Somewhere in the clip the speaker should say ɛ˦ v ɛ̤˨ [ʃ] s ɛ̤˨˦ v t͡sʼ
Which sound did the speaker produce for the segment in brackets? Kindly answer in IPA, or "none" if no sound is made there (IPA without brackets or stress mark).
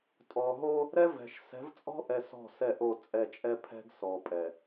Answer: ʃ